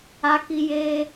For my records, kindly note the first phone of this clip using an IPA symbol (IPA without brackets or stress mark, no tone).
a